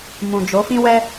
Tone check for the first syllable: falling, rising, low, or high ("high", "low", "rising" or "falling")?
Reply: low